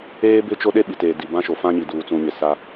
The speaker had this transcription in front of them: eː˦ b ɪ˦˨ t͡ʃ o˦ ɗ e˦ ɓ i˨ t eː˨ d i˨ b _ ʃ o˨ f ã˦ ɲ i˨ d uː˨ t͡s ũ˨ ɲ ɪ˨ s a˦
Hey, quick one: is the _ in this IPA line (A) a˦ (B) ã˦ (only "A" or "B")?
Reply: B